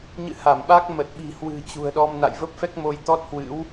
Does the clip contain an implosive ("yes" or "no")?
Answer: yes